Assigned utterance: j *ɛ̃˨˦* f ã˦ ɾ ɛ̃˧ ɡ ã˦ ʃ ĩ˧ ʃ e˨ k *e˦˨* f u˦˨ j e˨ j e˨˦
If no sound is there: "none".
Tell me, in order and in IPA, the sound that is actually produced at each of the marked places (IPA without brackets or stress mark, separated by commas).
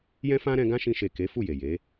ɛ̃˦, e˨˦